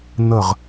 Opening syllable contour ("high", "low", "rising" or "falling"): falling